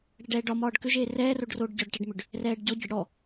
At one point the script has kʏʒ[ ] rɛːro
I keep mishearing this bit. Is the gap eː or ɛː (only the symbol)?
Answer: eː